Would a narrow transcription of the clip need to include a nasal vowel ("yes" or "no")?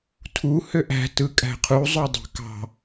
no